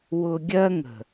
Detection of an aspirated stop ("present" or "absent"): absent